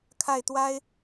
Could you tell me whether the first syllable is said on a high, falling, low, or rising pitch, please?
falling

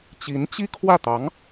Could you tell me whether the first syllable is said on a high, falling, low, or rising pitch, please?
rising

